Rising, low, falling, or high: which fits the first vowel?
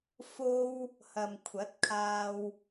high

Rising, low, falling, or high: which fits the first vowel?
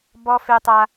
high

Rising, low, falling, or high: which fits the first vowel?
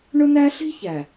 high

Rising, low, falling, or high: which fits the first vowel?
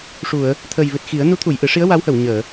low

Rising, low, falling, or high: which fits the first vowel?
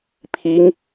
rising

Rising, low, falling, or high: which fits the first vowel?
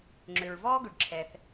low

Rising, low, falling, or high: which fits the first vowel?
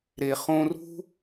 low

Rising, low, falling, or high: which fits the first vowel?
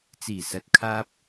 low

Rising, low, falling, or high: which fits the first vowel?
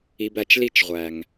low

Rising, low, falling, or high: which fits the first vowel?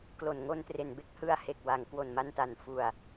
low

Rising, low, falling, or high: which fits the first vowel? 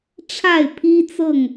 falling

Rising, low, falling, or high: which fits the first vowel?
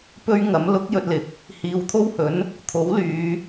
high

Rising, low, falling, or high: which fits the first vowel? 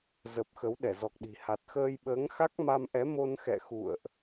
low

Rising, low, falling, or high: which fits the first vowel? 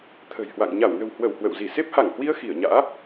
low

